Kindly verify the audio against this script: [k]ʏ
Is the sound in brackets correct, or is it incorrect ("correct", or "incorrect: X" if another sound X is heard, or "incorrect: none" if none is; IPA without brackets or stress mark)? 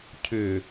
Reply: incorrect: cʰ